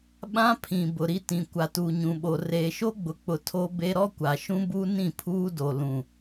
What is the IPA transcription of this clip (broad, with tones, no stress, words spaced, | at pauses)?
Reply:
ɓã˦pʰĩ˨ bʊ˨ɾi˦tĩ˨ kʷa˨tuː˨ɲũ˨ɓo˨ reː˨ʃo˦ɡ͡bʊ˨k͡pʊ˨ tʰo˦be˦ ɾɔ˦kʷa˨ʃũ˦ bu˦ nĩ˦˨pʰuː˦do˨ lũ˨